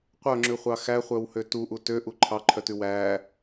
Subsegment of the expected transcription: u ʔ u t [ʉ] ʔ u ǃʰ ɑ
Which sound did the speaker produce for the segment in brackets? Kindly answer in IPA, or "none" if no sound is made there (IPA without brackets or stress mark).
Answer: ø